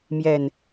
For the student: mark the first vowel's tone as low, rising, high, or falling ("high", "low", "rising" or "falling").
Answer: low